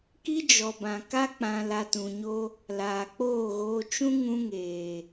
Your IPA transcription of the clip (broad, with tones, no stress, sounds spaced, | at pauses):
k i˦ d͡ʒ ɔ˨ b ã˨ k a˦ k͡p ã˨ l a˧ t ũ˨ ɲ o˦ | l aː˨ k͡p oː˦˨ ɣ oː˧ t͡ʃ ũ˦ ŋ ũ˧ ŋ eː˨